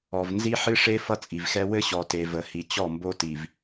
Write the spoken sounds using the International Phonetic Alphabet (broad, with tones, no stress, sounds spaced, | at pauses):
ɔ˨ v n z i˦ ħ ɨ˦ ʂ e˦ f ʌ˦ t͡sʼ i˨ v x ɛ˦ w ɘ˦ ɕ ɔ˨ t e˨ v ə˨ h i˨ t͡ɕ ɔ˦˨ m b o˦ t i˨ v